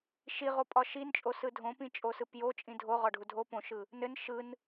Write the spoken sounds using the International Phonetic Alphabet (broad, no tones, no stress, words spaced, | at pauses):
ʃiʁo pʼɒʃint͡ʃʼo sɯdʱõpĩ t͡ʃʼosɯpjo t͡ʃʼĩdʱo ʁɒɖʱudʱo põʃɯ | nɘn ʃɯn